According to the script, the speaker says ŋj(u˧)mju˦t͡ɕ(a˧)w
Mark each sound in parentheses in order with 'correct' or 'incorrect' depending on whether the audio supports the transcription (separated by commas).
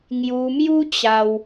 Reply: correct, correct